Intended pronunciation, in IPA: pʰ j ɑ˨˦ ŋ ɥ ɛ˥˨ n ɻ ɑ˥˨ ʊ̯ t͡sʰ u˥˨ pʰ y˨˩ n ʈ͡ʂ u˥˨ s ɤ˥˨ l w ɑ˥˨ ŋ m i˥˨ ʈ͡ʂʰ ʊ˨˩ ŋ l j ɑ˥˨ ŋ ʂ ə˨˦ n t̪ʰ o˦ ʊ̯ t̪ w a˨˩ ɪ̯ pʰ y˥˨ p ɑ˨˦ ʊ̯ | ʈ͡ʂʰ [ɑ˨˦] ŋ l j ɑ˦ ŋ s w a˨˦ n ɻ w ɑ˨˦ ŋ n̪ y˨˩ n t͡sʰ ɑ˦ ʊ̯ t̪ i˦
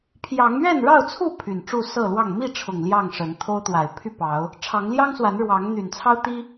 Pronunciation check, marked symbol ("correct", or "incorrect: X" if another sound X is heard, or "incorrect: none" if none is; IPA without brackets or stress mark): correct